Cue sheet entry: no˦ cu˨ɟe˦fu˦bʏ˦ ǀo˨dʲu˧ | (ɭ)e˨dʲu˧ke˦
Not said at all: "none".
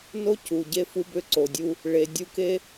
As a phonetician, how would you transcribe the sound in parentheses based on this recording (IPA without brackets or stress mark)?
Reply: ɭ